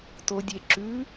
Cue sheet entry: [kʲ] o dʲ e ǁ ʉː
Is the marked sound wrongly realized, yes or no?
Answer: yes